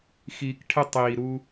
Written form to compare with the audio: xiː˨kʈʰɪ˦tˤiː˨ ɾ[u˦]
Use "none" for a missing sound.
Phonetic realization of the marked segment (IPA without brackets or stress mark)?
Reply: u˦